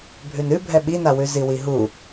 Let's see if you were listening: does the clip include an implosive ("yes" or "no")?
yes